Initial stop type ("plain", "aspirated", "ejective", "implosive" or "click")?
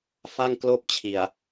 plain